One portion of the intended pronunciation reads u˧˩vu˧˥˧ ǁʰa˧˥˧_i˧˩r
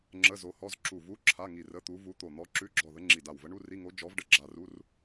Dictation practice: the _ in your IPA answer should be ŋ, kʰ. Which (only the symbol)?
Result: ŋ